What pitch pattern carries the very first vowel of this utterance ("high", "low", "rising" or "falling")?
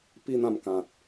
high